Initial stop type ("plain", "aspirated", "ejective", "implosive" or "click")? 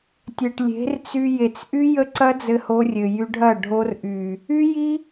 plain